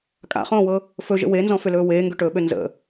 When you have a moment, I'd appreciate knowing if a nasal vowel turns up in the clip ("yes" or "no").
yes